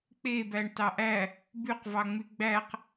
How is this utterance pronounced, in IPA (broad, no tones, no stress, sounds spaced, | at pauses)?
k͡p e b æ ɳ t ɑ ʔ æ | b y q v ɑ ŋ͡m y ɡ͡b æ q